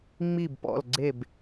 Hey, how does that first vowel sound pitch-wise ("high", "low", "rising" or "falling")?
low